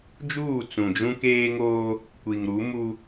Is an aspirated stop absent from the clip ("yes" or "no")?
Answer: yes